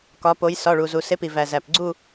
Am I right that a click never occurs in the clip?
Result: no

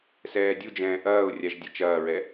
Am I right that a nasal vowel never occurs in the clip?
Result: no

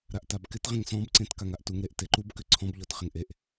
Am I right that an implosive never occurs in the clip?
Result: yes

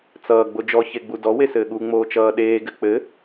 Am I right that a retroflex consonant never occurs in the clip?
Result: yes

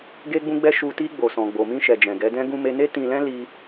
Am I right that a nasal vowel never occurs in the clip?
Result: no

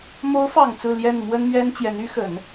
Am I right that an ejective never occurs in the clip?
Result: yes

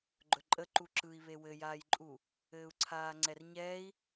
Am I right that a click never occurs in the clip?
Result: no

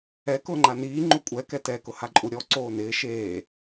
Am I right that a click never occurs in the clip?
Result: no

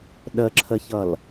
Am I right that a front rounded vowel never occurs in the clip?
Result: yes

